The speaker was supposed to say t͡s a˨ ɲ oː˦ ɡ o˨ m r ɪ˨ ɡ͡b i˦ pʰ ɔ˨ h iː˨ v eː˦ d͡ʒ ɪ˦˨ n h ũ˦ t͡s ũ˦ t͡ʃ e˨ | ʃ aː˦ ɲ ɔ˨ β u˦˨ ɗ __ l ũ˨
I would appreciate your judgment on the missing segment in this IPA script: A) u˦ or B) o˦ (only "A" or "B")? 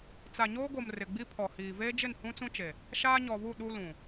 A